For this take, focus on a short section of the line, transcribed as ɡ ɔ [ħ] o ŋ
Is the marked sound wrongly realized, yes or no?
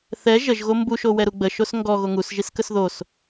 yes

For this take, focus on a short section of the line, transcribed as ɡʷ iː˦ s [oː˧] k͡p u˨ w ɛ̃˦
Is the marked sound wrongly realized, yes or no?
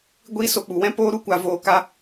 yes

